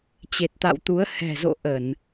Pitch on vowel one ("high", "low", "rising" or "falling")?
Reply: low